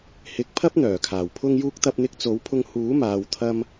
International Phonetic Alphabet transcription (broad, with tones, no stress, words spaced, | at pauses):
hɪ˨˥k̚pʰɐ˥p̚ n̪œː˨˩kʰaː˨˩w pʰʊ˥ŋjuː˥k̚ t̪ɐ˧p̚n̪ɪ˧k̚t͡so˨˥wpʰʊ˧ŋ huː˨˥maː˨wt̪ʰɐ˧m